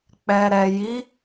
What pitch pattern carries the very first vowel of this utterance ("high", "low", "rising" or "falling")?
low